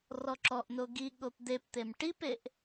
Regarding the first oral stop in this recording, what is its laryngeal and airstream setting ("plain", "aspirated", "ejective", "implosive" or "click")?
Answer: click